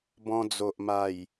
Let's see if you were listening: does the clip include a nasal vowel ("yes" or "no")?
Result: yes